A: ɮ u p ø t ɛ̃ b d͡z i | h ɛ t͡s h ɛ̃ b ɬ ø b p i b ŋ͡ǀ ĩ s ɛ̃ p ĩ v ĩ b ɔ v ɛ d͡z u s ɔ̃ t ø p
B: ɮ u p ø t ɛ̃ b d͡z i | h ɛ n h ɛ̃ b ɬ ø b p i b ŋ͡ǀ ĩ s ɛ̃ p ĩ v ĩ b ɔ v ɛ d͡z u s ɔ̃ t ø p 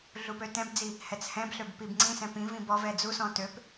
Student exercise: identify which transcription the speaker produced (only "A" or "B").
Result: A